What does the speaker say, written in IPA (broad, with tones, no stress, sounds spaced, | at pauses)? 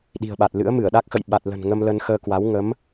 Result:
ɗ i̤˨˩ ə̯ ɓ a˨˩ t̚ l ɨ̰˧˥ ə̯ m ɨ˧˩ ə̯ ɗ a˦˥ k̚ x ə̰˧˨ j ɓ a˨˩ t̚ l ə̤˨˩ n ŋ ə˧ m l ə˧ n x əː˧ k w a˨˦ w ŋ ə˨˦ m